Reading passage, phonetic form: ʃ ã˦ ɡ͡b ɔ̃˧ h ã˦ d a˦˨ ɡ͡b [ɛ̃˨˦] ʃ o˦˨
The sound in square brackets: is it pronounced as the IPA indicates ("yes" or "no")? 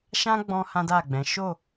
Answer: yes